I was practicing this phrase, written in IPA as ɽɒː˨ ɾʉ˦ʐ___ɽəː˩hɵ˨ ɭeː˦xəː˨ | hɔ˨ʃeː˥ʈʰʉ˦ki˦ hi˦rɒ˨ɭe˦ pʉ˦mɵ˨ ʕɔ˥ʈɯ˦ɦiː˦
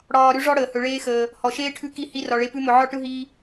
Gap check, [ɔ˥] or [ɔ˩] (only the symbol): ɔ˥